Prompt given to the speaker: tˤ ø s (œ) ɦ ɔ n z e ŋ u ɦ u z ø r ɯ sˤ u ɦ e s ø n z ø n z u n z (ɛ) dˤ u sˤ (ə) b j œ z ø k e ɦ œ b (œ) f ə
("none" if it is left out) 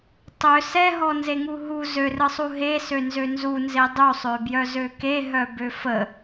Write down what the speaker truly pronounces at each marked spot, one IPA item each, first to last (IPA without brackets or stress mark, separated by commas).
ɛ, e, ø, ø